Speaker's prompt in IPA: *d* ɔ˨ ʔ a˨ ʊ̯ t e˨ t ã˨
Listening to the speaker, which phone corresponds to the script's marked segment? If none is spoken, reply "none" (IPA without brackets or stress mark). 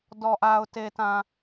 d